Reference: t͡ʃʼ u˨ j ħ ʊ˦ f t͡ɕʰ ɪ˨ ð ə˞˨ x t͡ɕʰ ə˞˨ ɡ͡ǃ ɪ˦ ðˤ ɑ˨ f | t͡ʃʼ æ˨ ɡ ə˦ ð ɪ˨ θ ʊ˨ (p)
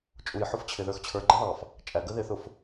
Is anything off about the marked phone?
yes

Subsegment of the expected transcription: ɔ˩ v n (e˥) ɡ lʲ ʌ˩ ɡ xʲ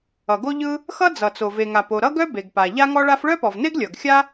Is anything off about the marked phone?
no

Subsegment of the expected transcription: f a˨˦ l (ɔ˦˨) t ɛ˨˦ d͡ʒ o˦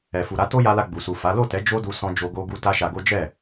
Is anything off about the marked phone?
yes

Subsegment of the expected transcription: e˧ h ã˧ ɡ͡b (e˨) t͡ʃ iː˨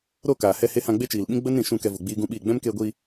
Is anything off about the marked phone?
yes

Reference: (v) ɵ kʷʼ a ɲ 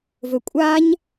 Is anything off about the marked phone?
no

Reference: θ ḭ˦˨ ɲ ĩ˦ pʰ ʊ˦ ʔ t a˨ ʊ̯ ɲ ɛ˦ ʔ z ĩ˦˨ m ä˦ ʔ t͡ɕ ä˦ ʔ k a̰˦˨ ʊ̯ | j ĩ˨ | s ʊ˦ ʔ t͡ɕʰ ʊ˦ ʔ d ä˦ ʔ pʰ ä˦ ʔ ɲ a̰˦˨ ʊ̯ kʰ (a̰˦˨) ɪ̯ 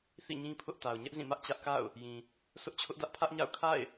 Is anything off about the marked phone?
no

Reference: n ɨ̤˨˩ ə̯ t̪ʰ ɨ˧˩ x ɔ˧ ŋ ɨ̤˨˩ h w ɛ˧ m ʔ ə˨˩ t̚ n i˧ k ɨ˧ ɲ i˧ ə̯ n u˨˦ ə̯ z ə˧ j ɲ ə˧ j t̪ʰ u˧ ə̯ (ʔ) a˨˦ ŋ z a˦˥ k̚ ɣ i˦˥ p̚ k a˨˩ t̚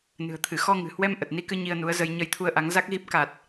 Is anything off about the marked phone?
no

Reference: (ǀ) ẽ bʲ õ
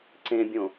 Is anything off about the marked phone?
no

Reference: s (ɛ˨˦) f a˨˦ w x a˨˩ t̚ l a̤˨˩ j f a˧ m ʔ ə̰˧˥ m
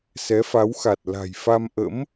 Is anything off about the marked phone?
no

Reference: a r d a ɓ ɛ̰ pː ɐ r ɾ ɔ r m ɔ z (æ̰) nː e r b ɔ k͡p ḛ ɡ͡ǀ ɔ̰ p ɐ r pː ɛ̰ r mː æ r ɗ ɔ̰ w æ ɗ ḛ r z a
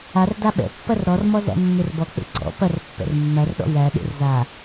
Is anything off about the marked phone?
no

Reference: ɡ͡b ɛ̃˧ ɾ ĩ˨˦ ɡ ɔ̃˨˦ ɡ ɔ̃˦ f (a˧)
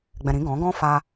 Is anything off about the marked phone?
no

